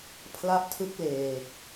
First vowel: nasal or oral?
oral